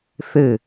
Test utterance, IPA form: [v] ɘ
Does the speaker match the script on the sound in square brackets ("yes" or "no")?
no